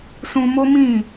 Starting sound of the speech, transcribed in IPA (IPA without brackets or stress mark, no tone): s